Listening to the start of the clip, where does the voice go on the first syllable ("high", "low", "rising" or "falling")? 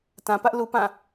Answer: low